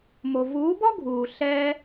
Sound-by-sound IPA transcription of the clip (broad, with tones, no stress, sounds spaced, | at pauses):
m o˨ v uː˨˦ b ɔ˦ ɡʱ uː˨ ɬ ɛ˧